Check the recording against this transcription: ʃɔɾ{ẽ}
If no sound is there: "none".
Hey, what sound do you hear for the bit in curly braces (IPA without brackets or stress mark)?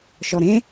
ẽ